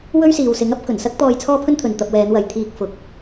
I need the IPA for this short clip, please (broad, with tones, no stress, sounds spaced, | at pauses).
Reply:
w ɵ˥ ɥ s iː˨ w s ɪ˨˥ ŋ ɐ˥ p̚ k ɵ˨˩ n s ɐ˥ k̚ t̪ ɔː˧ j t͡sʰ ɔː˥ pʰ ɵ˥ n t̪ʰ ɵ˨ n t̪ ɐ˧ p̚ w ɛː˨˧ n w ɐ˨ j t̪ʰ iː˧ k̚ f ʊ˨˥ k̚